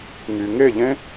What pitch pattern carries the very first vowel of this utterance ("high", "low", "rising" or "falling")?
low